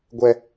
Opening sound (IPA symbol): ɡʷ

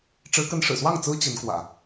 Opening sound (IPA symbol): ʈ͡ʂ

